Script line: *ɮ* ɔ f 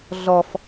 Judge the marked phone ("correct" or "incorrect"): correct